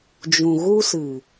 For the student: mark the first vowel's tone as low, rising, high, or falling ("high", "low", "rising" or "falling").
low